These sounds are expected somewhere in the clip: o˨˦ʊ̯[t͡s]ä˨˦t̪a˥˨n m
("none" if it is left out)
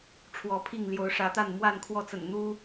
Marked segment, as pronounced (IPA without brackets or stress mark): ʂ